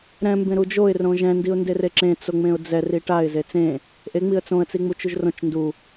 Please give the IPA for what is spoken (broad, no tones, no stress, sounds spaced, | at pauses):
ɾ ɛ̃ m b ẽ ɾ u d͡ʒ o ɪ̯ r õ ʒ ɛ̃ n d i ʊ̯ n d e r e ǁ ẽ t͡s o ŋ͡m ẽ ʊ̯ d͡z ɛ r i ʈ a ɪ̯ z e t͡s ẽ | ʔ e ŋ͡m i ə̯ t͡s õ ə̯ t͡s i ŋ͡m u t͡ʃ u ʒ r õ t͡ʃ n d u